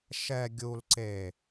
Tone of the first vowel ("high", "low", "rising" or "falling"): low